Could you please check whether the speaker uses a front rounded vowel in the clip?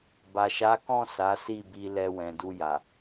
no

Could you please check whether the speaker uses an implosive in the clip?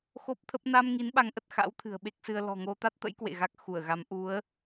yes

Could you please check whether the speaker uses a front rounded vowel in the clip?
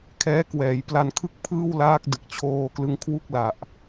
no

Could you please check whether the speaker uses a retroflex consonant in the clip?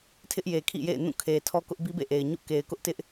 no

